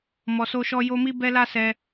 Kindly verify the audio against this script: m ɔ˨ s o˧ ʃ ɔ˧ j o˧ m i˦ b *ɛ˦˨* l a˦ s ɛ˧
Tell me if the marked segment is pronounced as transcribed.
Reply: no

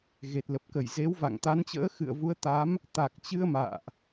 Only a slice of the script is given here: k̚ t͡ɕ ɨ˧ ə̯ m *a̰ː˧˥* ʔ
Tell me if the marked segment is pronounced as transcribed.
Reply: no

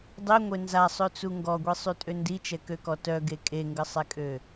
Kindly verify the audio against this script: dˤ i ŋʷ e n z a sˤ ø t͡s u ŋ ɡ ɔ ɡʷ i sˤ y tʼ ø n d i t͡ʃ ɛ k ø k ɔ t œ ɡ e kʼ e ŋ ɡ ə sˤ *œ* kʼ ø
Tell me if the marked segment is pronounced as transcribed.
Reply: no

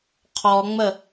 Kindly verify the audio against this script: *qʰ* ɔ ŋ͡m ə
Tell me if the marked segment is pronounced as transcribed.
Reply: yes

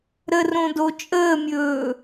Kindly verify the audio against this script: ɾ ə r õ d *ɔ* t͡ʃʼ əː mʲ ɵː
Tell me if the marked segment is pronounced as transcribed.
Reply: no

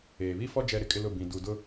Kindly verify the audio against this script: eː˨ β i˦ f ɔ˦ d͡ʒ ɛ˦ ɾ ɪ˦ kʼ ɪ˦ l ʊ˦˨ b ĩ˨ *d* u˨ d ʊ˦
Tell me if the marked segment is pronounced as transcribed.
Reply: yes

